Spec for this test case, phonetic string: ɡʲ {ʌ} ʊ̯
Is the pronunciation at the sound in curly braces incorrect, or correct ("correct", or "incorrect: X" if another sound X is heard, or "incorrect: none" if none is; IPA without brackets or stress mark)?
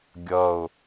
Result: correct